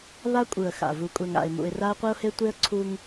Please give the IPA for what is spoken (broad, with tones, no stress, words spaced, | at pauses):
βa˦kʷʼɯ˨ə̯ xa̰˨ vu˨kʷʼɛ˨ŋa̰˨ɪ̯ mṵ˨ɪ̯ra˦ə̯qʷi˦ʊ̯he˦ tʷe˦ə̯ ǀʰu˦ŋ